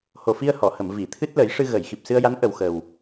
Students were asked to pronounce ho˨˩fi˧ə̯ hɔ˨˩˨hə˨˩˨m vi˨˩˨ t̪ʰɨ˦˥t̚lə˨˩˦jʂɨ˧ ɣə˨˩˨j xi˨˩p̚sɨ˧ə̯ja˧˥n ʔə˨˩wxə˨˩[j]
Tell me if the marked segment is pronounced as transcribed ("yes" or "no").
no